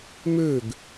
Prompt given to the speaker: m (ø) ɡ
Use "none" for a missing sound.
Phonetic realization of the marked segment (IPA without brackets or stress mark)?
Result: ø